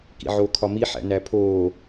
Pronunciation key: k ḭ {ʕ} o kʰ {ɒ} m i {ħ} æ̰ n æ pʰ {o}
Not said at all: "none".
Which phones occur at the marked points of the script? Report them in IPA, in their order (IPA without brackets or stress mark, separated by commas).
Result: ʕ, ɒ, ħ, oː